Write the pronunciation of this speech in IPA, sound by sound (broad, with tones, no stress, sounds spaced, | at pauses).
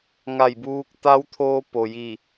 ŋ a˧˩ j b uː˧ k̚ t̪ a˧˥ w t̪ʰ oː˧ p o˩ j i˧˩